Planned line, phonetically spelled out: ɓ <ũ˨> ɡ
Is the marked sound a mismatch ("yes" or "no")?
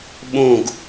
yes